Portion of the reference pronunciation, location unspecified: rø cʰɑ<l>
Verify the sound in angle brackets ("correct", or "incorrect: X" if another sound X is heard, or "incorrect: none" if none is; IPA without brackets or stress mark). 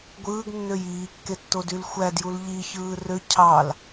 correct